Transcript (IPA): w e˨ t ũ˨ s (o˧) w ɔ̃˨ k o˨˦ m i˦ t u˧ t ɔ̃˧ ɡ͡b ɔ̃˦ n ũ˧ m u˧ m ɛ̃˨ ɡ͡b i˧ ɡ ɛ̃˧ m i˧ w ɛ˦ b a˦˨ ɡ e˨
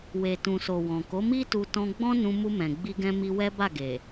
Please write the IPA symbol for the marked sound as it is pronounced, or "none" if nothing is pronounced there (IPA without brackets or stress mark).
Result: o˨